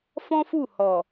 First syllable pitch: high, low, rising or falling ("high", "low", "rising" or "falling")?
high